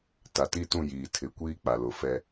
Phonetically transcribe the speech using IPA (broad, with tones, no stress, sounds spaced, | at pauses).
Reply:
t a˨ t i˦˨ t ũ˦˨ j iː˨ tʰ ɪ˨˦ kʷ iː˦ k͡p a˨ l ʊ˨ f ɛ˦